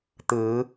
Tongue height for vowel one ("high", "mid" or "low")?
high